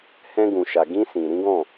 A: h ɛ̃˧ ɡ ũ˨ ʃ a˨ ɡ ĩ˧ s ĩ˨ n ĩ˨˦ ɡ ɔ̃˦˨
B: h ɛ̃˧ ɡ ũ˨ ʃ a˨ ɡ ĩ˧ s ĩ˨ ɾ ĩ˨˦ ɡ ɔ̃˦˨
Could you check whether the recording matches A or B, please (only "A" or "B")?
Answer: B